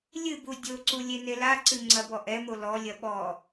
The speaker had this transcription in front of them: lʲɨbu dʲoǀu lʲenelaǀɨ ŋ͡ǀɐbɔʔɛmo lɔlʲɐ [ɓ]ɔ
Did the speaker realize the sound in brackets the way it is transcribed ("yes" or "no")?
yes